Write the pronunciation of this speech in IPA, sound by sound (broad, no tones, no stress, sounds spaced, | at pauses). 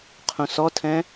qʰ ũ s ɔ tʰ ɛ̃